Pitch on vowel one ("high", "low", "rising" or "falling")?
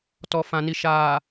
low